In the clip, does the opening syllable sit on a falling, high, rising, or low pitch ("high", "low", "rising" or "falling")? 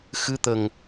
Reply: rising